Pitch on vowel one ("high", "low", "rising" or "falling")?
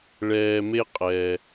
low